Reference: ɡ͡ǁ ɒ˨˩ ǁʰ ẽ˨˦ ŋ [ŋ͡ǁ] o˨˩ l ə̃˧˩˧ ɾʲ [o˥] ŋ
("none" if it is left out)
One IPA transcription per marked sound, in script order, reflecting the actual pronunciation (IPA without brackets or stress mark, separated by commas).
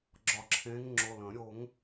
ŋ͡ǁ, o˧˩˧